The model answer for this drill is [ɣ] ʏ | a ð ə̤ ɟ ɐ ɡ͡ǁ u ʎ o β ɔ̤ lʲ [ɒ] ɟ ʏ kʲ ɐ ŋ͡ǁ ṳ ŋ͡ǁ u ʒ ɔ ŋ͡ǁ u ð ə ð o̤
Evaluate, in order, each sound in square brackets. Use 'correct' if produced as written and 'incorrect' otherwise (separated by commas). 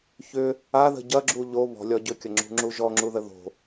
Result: incorrect, correct